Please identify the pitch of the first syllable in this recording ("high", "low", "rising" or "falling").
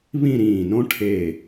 falling